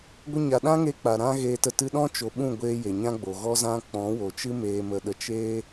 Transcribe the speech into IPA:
ɡʷə˧ɲa˨ ɗã˦ŋe˧ k͡pa˨ɾã˦ɣeː˧tə˧ tɨ˧ɗɔ̃˦ t͡ʃo˨ɓũ˦˨ɡʷeː˧ je˨ɲã˦ɡ͡bo˨ɣɔ˦ zã˦ k͡pɔ̃˨˦wo˨t͡ʃɨ˦ meː˧mə˧ɗə˧ t͡ʃeː˦

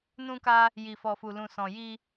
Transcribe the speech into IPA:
nũ˧ka˧ | ji˨fɔ˨fu˨lũ˨ sɔ̃˨ji˧

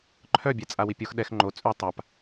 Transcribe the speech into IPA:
ǃʰœbʲɛ t͡sʼawipʲox ɗɛx ŋ͡ǃo t͡sʼʉ tˤap

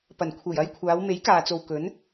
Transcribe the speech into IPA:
pɐ˨˩nkʷʰe˨˩j ɐ˧jkʷʰaː˨˧w me˨˥jkaː˨t͡so˨w kɵ˨˥n

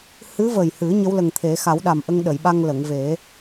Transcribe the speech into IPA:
hɨ˧˥və˨˩jhɨ˨˩˦ ɲə˧˥wlə˨˩ŋt̪ʰe˨˩˦ xa˨˩˦wɗa˨˩mʔə˧ŋ ɗə˨˩˨jɓa˧ŋ lə˨˩˨ŋve˨˩˦

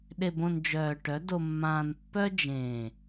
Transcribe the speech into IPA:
ɗe˨bõ˨n d͡ʒœː˨ʈœ˨˦ do˨mːãː˨npːœ˦ d͡ʒẽː˨

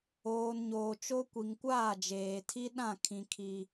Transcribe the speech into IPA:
oː˨nɲoː˨t͡ʃo˦kʷi˨ŋ kʷaː˦˨d͡ʒeː˨tʰi˦ ɗã˦˨kʰĩ˨ kʰi˨

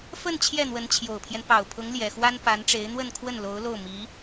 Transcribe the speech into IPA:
fə˥˧n t͡ɕʰjɛ˥˩n̪wə˧˥nt͡ɕʰjo˨˩ʊ̯pʰjɛ˦n pɑ˨˩ʊ̯pʰʊ˧˥ŋljɛ˨˩xwa˥n pa˧˥nʈ͡ʂe˧˥ɪ̯ n̪wə˥˧nkʰwə˥˩n lo˧˥ʊ̯lo˥˩ʊ̯ mi˧˥

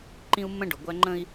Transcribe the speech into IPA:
ǃĩ˦u̯mːə̃˦ ɖʊ˨ɡʷæ˦ ŋ͡ǃə̃˦i̯

